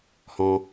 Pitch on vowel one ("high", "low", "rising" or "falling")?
low